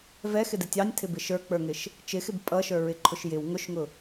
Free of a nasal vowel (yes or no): yes